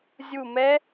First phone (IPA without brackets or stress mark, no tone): zʲ